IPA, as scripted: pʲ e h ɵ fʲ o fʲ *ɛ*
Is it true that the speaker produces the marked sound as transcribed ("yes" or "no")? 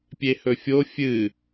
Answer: no